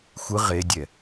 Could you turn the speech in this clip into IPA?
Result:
xʷ ɯ ʁ e dʲ ɛ

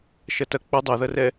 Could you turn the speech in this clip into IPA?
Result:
ʃ ɐ t ɐ k͡p ɐ dˤ u ð ɐ r ɛ

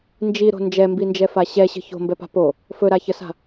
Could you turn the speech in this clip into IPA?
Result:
n d͡ʒ i ɾ o̤ n d͡ʒ ɛ m b i n d͡ʒ ɛ f a ɕ ɛ ɕ ə̤ ç o̤ m b ɛ p a̤ p o | f ɵ ɾ a ç ə s a̤

